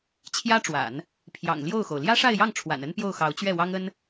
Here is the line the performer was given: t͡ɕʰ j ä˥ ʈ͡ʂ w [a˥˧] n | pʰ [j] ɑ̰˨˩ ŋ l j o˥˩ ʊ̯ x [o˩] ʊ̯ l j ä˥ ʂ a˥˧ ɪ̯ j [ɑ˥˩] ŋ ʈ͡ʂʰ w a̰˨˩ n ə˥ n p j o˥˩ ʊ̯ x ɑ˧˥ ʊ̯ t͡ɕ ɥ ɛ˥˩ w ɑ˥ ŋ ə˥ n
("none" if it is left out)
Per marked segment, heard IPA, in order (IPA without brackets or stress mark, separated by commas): a̰˨˩˦, j, o˩, ɑ˥˩